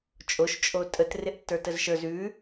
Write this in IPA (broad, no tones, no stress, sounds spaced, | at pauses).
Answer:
t͡ʃʼ o ʃ t͡ʃʼ o tʼ ə t r ɪ ʔ tː ə˞ t ə z ʃ ə˞ z ʉ